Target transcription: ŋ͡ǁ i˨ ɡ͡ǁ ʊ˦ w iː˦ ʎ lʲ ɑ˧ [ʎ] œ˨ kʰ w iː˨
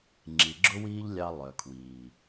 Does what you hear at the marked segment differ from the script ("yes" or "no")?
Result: yes